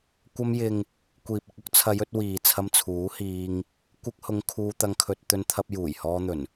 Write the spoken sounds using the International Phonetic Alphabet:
kʷ ɐ˧ m j ɪ˨ ŋ | kʷ iː˨ p̚ ɪ˧ k̚ ʊ˥ k̚ t͡sʰ ɐ˨˧ j ɵ˧ t̚ w iː˨ t͡sʰ ɐ˧ m t͡sʰ uː˨˥ h iː˧ ŋ | kʷ ɪ˧ k̚ h ʊ˨˧ ŋ kʰ uː˧ t̪ ɐ˧ ŋ kʰ ɵ˧ t̚ t̪ ɵ˧ n t̪ʰ ɐ˧ p̚ j uː˨˩ j h ɔː˧ n̪ ɵ˨˩ n

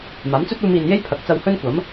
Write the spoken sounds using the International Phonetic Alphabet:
m aː˨˥ m t͡s ɵ˥ t̚ uː˧ m iː˨ n j e˥ j pʰ ɐ˨˥ k̚ t͡s ɐ˧ w h ɵ˥ n kʷ ɐ˨˥ m

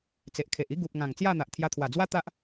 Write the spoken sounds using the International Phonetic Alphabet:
t͡s e˨ ʔ kʰ e˨ ʔ i˦ ɡ u˨ p̚ ŋ ã˨˩ ŋ t͡s j a˥˧ n̪ a˨ ʔ t̪ʰ j a˧ t̪ʰ w a˨˩ d͡z w a˦ t̪ a˦ ʔ

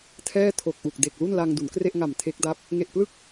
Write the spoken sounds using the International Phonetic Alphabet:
tʰ ɛː˥˩ tʰ o˨˩ k̚ ʔ u˨˩ k̚ d e˨˩ k̚ l u˥˩ n l a˧ ŋ d u˩˦ n k r e˥˩ ʔ ŋ a˨˩ m tʰ e˦˥ k̚ d a˦˥ p̚ | ŋ e˨˩ ʔ p l ɯ˦˥ k̚

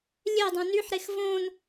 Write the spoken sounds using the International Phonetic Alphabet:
lʲ e dˤ õ n y ħ ɾ e x v õ n

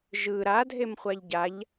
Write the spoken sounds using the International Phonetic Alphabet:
ʒ ɯ ɾ a dʱ e m χʷ a ʎ ɟ a ʎ

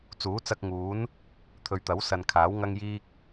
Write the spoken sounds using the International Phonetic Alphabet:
t͡s uː˨˥ t͡s ɐ˧ k̚ ŋ uː˨˥ n | t̪ʰ ɵ˨ ɥ t̪ ɐ˨˥ w s ɐ˨ n kʰ aː˨˥ w ŋ ɐ˥ ŋ j iː˥ k̚

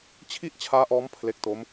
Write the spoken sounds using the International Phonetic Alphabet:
t͡ɕʰ i˥˩ ʔ t͡ɕʰ aː˦˥ ʔ ɔː˦˥ m pʰ l e˦˥ k̚ t o˦˥ m

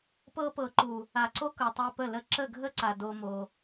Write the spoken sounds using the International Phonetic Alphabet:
p ɤ˧ p ɤ˨ ǃ u˨ | a˨ ǀ o˦ k ɤ˨ tˤ e˧ p ə˦˨ l ə˦ ǁ ə˦˨ ɡʱ ə˦ ǀ a˨ d o˦ m o˧

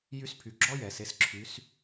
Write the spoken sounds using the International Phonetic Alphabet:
j y˧˥ s pʰ y˩ ɡ͡ǁ ɔ˥ j ɛ˩ s e˩˧ s ǁʰ y˩˧ s

